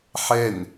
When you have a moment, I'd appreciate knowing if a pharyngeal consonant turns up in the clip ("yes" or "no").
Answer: yes